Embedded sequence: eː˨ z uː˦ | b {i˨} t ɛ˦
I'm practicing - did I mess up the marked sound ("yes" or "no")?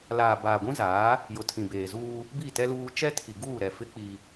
yes